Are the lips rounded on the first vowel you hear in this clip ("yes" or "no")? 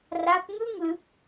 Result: no